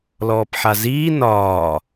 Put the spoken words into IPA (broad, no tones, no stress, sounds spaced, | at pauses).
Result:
l ɔː p ħ a z iː n ɒː